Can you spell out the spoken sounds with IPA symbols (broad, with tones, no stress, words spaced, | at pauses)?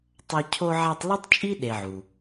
tˤa˦ cʰo˦ʕa˦tˤ lu˥tˤt͡ʃʼi˥ ɗe˨ʕu˩